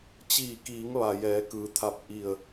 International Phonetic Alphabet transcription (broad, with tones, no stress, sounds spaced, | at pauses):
t͡ɕ iː˧˩ k iː˩˧ ŋ ʋ a˩ j ɛː˩˧ k ɯː˩ t̪ʰ a˧˩ p̚ ʔ i˧˩ ə̯